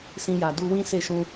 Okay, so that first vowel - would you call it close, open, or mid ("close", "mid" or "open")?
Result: close